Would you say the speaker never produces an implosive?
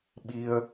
no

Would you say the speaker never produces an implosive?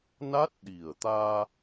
no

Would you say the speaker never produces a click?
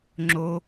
no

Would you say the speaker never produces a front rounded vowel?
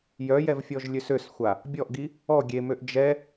no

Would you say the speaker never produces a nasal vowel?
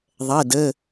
yes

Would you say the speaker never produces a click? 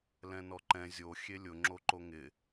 no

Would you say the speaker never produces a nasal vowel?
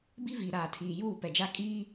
yes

